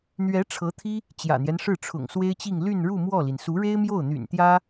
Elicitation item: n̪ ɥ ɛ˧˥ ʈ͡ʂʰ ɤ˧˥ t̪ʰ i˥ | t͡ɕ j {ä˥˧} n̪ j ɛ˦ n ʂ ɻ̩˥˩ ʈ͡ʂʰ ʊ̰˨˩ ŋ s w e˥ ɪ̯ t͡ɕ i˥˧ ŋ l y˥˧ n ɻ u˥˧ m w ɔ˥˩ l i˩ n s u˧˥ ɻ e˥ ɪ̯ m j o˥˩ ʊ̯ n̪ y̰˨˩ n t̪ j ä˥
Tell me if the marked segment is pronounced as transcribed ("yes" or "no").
no